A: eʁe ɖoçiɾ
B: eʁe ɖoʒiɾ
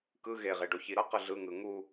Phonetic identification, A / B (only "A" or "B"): A